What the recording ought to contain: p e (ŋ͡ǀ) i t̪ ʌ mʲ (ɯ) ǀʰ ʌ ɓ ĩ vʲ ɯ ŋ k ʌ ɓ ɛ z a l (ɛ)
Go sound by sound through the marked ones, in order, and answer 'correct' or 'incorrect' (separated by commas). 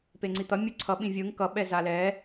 correct, incorrect, correct